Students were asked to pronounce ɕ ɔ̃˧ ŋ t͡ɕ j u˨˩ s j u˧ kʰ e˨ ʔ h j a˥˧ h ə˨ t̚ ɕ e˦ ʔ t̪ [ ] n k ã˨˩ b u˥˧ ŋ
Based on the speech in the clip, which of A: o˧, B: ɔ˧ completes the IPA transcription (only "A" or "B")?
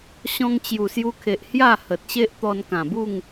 B